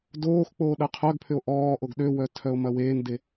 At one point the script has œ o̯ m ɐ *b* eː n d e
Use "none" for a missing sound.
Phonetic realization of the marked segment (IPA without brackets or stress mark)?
w